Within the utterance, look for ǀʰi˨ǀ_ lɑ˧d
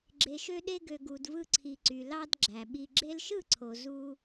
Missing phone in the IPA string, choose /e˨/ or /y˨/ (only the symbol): y˨